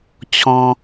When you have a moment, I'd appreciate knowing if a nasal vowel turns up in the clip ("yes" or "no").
yes